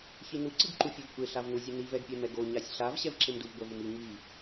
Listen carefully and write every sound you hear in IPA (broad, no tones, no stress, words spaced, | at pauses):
çinu ǀɯɡǃufʲovkʷe ɬavnuzʲeni vɛɡpʲɛmɛɡo ɲasʲɬav ɕɛvǁemduv ɡʷɛvumi ŋi